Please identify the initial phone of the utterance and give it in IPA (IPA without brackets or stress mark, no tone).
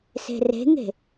s